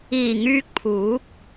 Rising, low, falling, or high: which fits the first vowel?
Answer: low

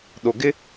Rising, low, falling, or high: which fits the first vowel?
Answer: low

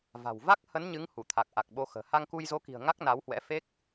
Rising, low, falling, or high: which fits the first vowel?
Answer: low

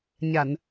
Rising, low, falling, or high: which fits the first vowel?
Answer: low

